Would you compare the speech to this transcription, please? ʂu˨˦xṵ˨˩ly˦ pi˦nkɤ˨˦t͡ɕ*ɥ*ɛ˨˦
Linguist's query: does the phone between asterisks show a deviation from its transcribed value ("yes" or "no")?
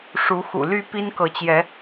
yes